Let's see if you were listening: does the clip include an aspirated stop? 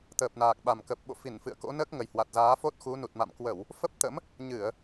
no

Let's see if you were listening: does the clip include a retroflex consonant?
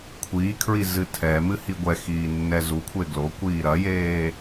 no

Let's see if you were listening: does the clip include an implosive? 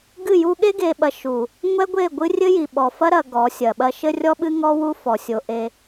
yes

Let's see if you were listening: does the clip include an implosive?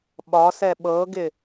yes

